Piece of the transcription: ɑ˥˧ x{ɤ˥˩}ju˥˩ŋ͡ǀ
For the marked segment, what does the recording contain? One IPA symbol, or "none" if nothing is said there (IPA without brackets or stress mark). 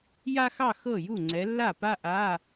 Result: ɤ˥˩